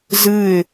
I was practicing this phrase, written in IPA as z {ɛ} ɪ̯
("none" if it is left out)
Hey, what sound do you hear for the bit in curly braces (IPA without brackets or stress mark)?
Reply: ɨ